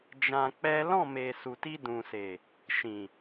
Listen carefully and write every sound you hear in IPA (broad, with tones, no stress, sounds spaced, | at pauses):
d͡ʒ ã˧ k͡p ɛ˦ l ɔ̃˦˨ m e˨ s u˨ t i˧ d ũ˨ s e˨ | ʃ ĩ˨